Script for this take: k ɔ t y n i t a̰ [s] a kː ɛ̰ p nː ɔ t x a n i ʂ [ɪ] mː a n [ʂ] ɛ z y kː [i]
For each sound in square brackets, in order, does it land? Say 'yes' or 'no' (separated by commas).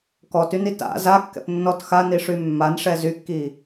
no, no, yes, yes